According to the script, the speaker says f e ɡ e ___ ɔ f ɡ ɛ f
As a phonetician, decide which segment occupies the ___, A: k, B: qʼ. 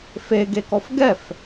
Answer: A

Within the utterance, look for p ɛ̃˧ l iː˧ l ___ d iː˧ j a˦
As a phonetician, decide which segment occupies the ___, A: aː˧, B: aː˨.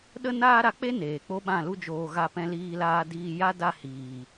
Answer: A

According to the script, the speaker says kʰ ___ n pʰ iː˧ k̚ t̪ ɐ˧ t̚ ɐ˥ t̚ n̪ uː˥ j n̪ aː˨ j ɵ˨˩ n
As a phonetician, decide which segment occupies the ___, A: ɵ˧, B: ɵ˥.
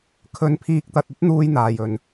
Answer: A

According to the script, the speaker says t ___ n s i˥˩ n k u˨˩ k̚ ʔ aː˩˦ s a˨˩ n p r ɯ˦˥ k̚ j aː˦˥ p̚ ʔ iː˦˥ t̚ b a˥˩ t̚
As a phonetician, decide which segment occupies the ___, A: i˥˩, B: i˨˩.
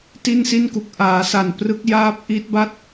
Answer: A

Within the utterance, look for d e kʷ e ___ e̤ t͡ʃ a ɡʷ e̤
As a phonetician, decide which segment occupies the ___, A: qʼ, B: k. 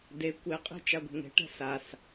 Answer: A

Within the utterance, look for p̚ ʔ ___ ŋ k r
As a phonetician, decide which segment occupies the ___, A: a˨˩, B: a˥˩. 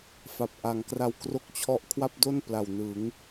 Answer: A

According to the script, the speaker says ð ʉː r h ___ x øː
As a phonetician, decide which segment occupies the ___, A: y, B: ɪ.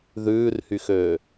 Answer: A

